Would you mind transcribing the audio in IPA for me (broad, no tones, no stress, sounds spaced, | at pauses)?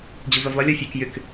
d͡ʑ u v ɵ v lˠ ø lʲ ɔ fʲ u k j y k